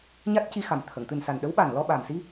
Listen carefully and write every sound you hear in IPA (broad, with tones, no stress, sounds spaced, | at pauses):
ɲ a˦˥ t̚ c i˧ x a˨˩ m t̪ʰ ə˨˩˨ ŋ t̪ ɨ˨˩ n s a˨˩ n ɗ ə˧˥ w ɓ a˨˩ n l ɔ˧ ɓ aː˨˩ m s i˧